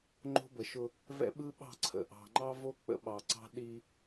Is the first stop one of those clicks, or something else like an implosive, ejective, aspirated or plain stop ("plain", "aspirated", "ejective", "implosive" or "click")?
click